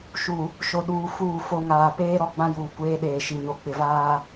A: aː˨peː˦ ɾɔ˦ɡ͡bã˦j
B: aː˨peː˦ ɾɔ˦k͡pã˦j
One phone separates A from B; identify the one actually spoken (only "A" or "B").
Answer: A